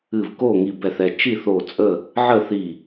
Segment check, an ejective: present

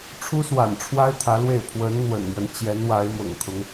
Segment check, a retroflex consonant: present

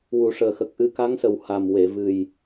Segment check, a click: absent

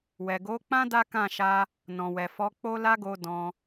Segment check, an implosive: absent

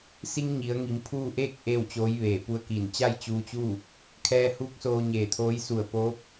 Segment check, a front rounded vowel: absent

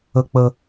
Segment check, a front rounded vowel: absent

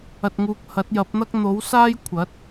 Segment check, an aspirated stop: present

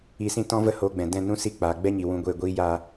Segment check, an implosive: absent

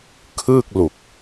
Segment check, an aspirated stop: present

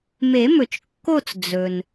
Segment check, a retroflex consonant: absent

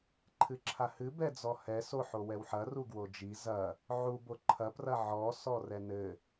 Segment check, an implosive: absent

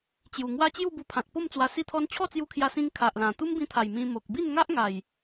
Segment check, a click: absent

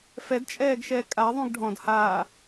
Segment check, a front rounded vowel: absent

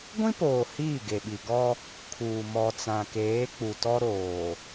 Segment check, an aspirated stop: present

